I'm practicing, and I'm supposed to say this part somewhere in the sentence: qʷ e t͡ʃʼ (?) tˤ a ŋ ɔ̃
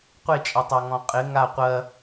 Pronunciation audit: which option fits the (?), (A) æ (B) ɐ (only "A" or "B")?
B